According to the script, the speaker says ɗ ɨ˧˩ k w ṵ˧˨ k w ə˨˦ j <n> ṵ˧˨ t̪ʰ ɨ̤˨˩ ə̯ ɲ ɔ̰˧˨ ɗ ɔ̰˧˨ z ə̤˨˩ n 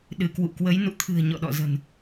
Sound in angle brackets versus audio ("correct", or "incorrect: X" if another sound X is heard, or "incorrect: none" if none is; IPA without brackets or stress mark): correct